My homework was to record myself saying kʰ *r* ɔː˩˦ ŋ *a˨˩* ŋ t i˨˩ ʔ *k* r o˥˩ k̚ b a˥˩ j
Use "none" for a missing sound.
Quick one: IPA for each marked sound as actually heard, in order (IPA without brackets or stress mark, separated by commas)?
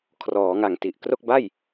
r, a˨˩, k